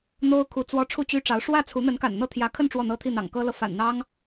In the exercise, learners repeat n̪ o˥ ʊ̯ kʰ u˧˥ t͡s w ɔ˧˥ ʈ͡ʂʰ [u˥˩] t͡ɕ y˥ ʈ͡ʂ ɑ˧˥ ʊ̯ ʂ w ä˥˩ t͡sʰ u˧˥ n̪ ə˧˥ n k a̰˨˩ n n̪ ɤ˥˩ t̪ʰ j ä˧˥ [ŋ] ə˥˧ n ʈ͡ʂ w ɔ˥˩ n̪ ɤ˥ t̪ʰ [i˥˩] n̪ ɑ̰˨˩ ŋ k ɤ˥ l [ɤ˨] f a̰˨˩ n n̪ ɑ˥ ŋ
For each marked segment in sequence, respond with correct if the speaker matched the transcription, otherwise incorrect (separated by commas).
correct, incorrect, correct, correct